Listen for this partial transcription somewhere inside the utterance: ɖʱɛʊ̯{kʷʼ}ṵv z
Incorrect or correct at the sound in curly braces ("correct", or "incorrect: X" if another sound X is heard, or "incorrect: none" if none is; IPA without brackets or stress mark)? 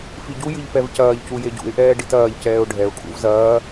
incorrect: kʼ